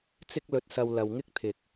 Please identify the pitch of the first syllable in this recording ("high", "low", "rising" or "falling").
high